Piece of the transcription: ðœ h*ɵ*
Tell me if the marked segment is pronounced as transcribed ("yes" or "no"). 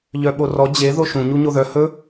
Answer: yes